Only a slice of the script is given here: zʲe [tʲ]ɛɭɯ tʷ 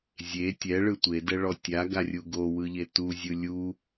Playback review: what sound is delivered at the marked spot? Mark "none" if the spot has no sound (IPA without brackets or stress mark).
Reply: tʲ